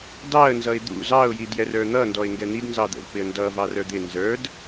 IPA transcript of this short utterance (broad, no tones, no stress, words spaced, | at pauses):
dɑə̯ nzʌɪ̯d̪ṵ zɑʊ̯ jidjɛrə˞n̪ʌ ndɔɪ̯ŋɡɛn̪id nzɑd̪ə̰vpɪə̯ndʌ vɑrə˞d̪ɪ nzə˞d